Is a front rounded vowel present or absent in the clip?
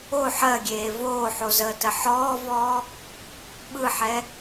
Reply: absent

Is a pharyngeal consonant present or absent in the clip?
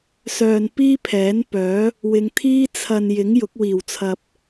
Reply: absent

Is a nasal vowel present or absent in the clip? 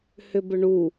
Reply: absent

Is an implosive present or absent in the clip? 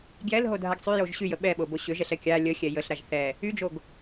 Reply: present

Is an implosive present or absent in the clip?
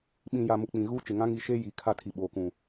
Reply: present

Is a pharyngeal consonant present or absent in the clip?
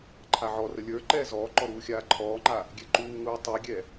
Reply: present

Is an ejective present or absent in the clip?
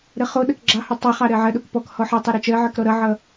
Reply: absent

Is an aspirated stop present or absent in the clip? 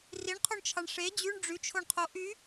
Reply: present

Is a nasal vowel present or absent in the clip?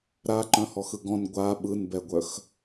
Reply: present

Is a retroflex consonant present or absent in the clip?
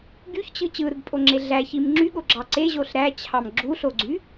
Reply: absent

